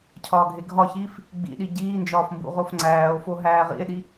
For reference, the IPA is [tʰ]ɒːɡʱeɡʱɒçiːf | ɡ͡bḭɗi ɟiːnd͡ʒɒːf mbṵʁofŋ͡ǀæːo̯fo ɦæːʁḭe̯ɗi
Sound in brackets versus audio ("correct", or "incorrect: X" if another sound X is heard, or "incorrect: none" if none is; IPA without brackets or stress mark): incorrect: cʰ